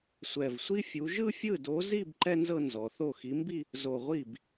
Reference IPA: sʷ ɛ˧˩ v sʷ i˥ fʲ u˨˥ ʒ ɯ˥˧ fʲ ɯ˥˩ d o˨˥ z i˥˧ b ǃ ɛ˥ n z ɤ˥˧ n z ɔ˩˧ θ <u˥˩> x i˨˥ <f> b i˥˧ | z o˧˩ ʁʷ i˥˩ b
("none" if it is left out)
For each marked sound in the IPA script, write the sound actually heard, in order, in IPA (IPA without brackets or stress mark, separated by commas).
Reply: o˥˩, m